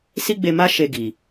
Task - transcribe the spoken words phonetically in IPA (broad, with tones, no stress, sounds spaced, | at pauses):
s i˦ ɡ͡b e˧ m a˦ ʃ e˧ ɡ i˨